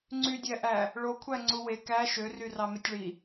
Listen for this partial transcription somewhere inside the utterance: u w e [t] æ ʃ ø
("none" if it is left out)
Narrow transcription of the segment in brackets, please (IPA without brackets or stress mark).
k